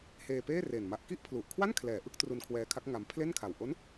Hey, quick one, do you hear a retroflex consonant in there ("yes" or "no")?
no